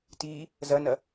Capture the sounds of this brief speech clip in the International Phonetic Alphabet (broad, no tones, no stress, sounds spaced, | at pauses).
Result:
t i | z ɐ n ɐ